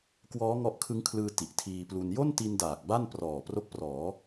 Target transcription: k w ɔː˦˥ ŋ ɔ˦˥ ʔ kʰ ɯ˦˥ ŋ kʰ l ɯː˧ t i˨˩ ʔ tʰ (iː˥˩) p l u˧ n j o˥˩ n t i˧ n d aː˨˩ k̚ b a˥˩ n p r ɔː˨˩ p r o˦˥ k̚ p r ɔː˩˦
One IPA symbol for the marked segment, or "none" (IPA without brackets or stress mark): iː˧